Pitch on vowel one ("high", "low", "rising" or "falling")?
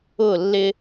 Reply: falling